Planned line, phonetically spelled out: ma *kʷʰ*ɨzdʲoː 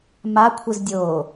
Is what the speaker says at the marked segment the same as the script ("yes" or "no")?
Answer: yes